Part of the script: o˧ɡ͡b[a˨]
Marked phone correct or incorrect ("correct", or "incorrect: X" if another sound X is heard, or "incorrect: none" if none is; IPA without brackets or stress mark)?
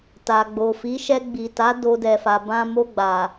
correct